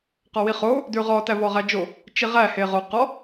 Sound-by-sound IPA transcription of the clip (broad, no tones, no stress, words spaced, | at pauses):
qɔwiχo | dʉʁɔ tævɔʁæd͡ʒo | t͡ʃiʁæ heʁo qɔ